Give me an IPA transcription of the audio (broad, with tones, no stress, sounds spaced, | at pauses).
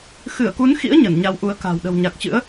x ɨ˧˩ ə̯ k u˨˦ n x ḭ˧˥ ə̯ ɲ ə˧˩ n ɲ a˨˦ w ʔ u˨˦ ə̯ k a̤˨˩ w ɗ ə̤˨˩ w ɲ a˨˩ k̚ t͡ɕ ɨ̰˧˥ ə̯